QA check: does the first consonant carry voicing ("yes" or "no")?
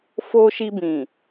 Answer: no